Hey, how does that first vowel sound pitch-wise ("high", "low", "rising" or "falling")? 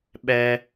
high